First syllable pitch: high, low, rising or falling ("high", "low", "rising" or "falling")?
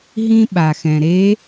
high